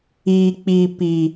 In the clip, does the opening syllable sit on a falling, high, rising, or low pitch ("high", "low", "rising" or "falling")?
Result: low